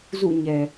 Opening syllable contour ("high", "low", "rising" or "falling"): falling